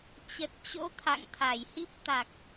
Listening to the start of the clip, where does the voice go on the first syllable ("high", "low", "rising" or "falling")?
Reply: low